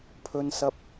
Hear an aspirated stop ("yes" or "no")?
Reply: yes